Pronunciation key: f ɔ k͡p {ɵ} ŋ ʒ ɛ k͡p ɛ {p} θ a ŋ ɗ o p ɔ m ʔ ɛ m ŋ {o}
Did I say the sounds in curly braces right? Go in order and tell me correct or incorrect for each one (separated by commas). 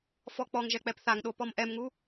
incorrect, correct, incorrect